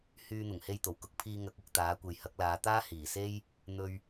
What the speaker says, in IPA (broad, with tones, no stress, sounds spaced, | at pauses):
h yː˧ n̪ ʊ˨˩ ŋ h e˧ j t̪ o˨˩ w k ʊ˧ k̚ pʰ iː˧ ŋ ɐ˨˥ k̚ ʊ˨ k̚ t̪ aː˨˥ kʷ e˨ j h ɐ˨˥ k̚ l aː˨˧ t̪ aː˥ h iː˨˩ s e˥ j | n̪ ɵ˧ ɥ